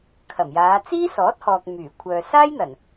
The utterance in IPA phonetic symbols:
kʰɐ˨˩mjaː˨˧ t͡siː˥sɔː˨˥t̚hɔː˨k̚ myː˨˩ kʷʰœː˨saː˥jn̪ɐ˨˩n

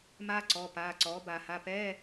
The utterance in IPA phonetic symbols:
maː˥ǀɔ˩˧˩ paː˩˧˩ǀɔː˩˥ ba˨˩˦ ha˩˧˩pɛː˧˥˧

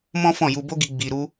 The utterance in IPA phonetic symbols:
mɔ̃˦fɔ̃˦˨ ju˧bo˦ɡi˧ ɡ͡bi˧ɾu˦

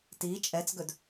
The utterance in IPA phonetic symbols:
ti t͡ʃʼɛt͡sɡɵd

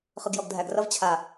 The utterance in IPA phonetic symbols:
χɯɡjɔɡdʱæɡrʌv t͡ɕʰa

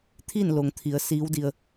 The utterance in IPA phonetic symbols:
t̪ʰiː˥˨nlo˩ŋt̪ʰi˩˧ə̯ siː˧˥wdi˧ə̯

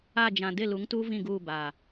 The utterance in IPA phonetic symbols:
a˦˨d͡ʒã˨ dɪ˦˨lu˨˦ŋtuː˦ vĩ˦˨ɡuː˦˨ ba˦˨

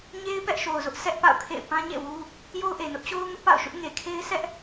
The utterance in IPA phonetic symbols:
ɲe˦ɪ̯ pɛ˦ʔʃo˨ʊ̯zʊ˦ʔ sʰɛ˦ʔpa̰˦˨ʊ̯kʰḛ˦˨ɪ̯ pã˦ɲḛ˦˨wu˦ | jo˦ʊ̯ʔe˨nʊ˦ʔ t͡ɕo˦ʊ̯ ŋʊ˦ʔpa̰˦˨ʊ̯ʃʊ˦ʔŋe˨ kʰe˦ɪ̯sʰɛ˦ʔ

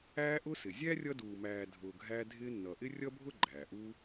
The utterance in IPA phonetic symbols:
æː˦ʔʊ˦sɪ˩ zʲæ˥rʲʌ˦duː˨mæː˨ dʱʊː˨ɡʱæː˦ dʱɪː˦nːʌ˨ʔɪ˥ rʲʌ˥bʱʊ˥ɡ͡ǃæː˩ʔuː˦

